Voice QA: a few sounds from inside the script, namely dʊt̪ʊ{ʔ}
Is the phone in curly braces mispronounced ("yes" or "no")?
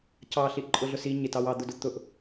no